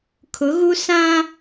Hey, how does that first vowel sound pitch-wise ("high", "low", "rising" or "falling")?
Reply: rising